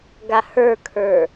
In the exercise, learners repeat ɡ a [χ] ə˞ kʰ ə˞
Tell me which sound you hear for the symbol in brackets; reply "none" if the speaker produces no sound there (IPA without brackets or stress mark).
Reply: h